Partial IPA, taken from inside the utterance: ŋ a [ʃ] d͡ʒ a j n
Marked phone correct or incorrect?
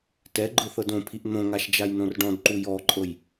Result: correct